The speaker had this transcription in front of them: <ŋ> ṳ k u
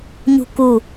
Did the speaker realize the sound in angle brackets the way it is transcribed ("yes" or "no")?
no